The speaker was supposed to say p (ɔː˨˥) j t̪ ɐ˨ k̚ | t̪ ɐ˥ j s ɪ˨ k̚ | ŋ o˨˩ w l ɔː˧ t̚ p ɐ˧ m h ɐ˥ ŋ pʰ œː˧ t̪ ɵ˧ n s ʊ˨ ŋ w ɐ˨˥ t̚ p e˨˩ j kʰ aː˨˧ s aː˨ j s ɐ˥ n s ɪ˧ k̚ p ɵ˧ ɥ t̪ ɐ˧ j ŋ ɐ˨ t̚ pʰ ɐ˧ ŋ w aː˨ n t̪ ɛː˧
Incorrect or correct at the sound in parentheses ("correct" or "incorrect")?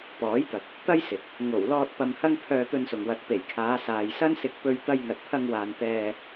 correct